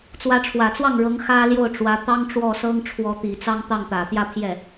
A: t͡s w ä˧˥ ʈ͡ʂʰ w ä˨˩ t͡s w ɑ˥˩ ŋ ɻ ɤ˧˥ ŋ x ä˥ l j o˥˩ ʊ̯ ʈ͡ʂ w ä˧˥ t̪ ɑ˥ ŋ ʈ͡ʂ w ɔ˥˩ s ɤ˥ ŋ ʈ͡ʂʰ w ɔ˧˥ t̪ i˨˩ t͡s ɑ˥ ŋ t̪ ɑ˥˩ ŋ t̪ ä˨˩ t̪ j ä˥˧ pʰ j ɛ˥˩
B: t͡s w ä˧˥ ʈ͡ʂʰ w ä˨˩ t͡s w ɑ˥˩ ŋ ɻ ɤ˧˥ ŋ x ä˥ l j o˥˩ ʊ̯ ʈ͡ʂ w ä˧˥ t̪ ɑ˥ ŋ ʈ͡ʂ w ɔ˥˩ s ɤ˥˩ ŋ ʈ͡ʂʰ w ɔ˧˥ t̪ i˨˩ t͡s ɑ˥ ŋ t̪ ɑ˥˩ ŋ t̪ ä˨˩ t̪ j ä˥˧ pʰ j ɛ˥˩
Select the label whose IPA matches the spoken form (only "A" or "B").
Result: A